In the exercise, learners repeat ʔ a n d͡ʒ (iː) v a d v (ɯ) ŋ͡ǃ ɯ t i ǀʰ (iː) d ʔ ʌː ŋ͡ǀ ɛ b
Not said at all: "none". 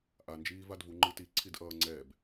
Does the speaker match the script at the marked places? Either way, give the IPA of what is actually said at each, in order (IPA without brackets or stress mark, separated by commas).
iː, u, i